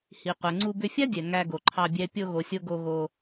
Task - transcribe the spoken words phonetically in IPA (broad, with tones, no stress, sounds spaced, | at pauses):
h i˨ qʷ ɛ˨ ŋ͡ǀ u˧ b ʏ˧ fʲ a˦ dʲ ɛ˨ ŋ æ˧ ɡ o˨ ǃʰ ɑ˧ bʲ ɛ˧ pʲ o˧ ɣ o˨ sʲ o˧ ɡ o˧ ɣ o˧